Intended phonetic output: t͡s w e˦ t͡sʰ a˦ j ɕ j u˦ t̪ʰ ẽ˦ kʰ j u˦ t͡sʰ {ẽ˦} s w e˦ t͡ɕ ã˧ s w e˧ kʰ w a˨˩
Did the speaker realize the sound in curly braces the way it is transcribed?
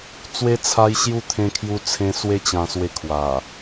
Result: yes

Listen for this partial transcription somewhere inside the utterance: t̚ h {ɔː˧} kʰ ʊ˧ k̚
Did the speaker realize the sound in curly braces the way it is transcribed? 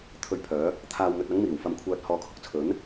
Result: no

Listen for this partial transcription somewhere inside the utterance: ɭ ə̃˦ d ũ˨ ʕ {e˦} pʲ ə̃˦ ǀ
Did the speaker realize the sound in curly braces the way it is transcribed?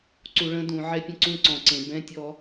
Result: no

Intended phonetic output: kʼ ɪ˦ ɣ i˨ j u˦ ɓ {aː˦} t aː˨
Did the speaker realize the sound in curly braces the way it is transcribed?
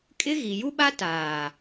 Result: no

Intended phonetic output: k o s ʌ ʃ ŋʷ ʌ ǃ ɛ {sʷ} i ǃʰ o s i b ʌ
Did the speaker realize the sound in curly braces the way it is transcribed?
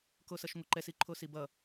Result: no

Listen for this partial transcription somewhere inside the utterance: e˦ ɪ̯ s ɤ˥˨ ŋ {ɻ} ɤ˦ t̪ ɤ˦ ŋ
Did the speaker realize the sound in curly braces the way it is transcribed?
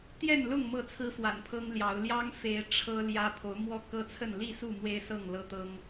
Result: no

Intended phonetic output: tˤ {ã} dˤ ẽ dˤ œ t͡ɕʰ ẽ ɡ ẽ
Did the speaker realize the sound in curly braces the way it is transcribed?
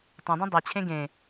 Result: yes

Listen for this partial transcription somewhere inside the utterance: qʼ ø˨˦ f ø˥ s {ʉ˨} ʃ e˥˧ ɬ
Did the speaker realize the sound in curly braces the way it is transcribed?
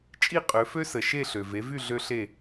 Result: no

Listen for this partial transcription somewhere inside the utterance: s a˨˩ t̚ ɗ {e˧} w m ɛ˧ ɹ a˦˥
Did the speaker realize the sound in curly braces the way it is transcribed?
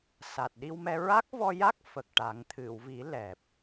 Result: no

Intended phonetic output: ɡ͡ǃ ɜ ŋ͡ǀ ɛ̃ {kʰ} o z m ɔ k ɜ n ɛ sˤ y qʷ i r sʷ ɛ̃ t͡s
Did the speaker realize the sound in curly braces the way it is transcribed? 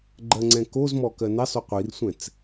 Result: no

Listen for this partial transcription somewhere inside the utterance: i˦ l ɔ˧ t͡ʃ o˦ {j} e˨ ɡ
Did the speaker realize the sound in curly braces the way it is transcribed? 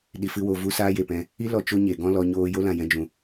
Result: no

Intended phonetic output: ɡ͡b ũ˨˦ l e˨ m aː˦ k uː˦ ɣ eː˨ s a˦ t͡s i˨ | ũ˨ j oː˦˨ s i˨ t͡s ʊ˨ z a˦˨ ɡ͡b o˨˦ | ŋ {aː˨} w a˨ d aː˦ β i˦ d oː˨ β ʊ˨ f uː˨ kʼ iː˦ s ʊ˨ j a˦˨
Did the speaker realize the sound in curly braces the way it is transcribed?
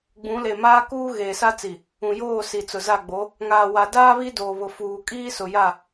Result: yes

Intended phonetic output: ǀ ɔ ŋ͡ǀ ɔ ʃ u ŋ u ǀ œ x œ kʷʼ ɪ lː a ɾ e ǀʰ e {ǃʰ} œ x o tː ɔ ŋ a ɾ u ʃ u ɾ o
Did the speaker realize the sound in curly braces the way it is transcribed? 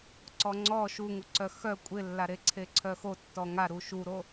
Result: no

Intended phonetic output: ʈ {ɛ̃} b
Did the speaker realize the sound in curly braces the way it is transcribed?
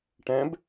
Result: yes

